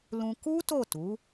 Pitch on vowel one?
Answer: high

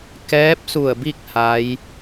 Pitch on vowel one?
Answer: rising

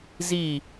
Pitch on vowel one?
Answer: falling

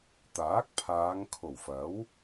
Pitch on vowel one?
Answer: rising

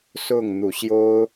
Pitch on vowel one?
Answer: falling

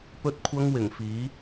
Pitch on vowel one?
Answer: high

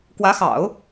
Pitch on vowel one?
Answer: rising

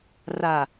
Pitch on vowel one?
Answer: low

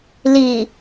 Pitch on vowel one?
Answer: low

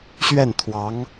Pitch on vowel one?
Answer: falling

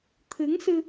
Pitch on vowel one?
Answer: rising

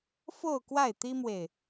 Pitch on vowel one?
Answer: falling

